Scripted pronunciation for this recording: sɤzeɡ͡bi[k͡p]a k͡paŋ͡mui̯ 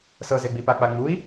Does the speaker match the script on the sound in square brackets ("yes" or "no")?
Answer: no